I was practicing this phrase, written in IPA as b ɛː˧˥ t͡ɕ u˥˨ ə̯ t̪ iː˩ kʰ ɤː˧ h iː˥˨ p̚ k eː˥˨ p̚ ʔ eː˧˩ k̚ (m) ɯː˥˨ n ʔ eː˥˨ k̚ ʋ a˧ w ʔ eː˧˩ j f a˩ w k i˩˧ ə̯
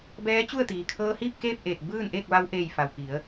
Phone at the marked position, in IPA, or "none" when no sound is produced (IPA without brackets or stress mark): b